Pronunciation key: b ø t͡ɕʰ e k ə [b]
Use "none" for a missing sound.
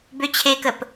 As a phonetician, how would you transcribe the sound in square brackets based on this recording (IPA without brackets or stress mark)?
p